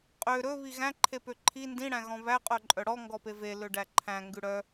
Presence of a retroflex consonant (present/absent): present